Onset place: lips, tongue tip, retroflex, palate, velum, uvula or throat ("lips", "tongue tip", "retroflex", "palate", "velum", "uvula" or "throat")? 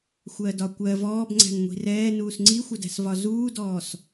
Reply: velum